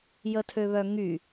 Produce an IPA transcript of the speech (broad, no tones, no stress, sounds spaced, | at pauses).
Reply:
j ə tʰ ø β œ ŋ y